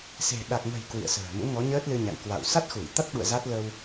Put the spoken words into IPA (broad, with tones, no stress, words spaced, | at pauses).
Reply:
se̤˨˩ɗa˨˩k̚ŋə̤˨˩j kwḭ˧˨ə̯sə̤ː˨˩ mṵ˧˥ŋɔ˨˦ ɲəː˦˥t̚lɨ˧ɲa̰˧˨ŋ kwa̰˧˨w sa˦˥t̚xu˧˩jt̪a˦˥t̚ɓṵ˧˨ə̯ za˦˥t̚ lə˧w